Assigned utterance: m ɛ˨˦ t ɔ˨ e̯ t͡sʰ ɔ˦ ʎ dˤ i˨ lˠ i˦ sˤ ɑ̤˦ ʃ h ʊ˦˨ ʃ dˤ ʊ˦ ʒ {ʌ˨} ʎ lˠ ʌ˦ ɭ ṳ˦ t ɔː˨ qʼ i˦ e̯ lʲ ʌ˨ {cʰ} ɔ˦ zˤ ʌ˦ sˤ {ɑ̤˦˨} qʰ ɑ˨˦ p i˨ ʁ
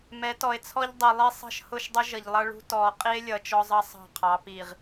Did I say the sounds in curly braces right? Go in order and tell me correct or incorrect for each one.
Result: correct, incorrect, correct

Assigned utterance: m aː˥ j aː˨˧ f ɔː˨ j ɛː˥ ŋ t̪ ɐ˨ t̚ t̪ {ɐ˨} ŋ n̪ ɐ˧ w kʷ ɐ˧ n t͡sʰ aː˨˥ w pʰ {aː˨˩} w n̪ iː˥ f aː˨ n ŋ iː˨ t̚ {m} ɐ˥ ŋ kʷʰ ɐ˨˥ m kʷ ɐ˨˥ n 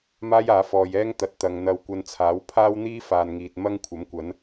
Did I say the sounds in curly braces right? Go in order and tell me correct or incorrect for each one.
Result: correct, incorrect, correct

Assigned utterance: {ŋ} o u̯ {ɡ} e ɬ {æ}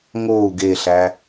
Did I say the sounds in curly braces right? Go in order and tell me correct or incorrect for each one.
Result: correct, correct, correct

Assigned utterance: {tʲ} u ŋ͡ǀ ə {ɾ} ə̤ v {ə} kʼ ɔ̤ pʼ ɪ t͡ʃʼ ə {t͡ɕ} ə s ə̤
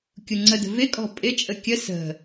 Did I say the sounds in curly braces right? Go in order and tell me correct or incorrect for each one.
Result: incorrect, incorrect, incorrect, incorrect

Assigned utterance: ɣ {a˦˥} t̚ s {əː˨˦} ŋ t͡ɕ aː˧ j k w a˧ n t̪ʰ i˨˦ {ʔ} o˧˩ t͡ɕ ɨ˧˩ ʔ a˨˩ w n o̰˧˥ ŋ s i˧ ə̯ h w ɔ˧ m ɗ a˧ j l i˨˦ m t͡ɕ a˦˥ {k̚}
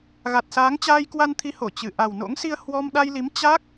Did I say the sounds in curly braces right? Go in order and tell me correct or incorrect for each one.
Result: incorrect, incorrect, incorrect, correct

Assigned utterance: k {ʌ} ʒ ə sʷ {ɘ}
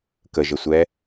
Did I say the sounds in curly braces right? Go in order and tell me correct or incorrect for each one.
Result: incorrect, incorrect

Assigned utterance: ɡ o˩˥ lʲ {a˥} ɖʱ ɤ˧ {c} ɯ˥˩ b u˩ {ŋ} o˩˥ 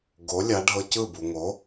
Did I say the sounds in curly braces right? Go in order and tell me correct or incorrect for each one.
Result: incorrect, correct, correct

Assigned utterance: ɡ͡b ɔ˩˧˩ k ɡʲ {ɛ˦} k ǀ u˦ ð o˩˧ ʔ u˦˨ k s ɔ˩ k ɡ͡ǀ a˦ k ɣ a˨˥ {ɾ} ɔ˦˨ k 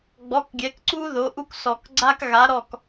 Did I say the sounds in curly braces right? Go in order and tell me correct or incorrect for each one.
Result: incorrect, correct

